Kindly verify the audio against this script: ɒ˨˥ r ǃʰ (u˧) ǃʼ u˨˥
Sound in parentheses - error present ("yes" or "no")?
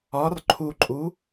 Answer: no